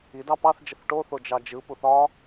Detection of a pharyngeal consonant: absent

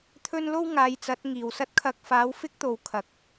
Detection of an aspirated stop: present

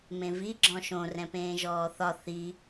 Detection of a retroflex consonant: absent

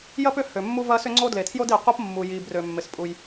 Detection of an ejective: present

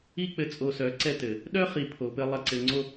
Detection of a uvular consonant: present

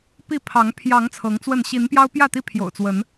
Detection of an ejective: absent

